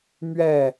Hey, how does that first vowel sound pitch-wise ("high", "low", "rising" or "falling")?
falling